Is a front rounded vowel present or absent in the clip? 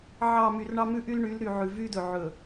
present